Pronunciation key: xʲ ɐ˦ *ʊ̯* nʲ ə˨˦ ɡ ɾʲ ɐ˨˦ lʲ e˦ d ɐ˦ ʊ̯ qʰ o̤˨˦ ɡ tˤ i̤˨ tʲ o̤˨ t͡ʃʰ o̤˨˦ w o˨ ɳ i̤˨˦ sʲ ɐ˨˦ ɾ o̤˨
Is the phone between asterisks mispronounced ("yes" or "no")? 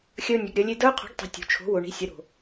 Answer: no